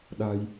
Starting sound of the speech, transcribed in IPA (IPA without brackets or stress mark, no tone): ɗ